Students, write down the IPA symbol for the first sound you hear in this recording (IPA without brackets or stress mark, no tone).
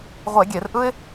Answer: ʁʷ